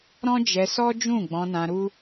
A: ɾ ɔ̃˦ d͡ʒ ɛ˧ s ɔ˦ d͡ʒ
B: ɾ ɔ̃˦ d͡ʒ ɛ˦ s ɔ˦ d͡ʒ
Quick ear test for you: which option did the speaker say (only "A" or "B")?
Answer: A